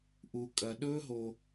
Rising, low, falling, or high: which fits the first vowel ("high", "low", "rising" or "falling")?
low